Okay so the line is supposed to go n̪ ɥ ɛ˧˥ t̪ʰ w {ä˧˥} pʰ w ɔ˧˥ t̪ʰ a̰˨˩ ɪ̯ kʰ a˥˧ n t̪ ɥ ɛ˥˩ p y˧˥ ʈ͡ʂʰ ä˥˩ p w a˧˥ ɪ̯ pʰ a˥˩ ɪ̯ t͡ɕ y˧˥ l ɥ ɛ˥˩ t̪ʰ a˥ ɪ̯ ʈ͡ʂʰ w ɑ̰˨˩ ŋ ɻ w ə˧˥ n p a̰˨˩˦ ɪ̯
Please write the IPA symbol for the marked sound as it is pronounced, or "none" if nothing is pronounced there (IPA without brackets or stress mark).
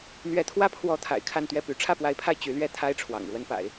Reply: ä˥